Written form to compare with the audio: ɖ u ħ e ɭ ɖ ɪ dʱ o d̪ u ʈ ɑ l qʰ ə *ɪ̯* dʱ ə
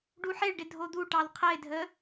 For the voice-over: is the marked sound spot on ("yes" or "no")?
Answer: yes